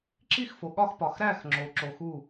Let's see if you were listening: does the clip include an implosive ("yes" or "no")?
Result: yes